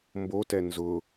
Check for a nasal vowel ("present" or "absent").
absent